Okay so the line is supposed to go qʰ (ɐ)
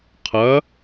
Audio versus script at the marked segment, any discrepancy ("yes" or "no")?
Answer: no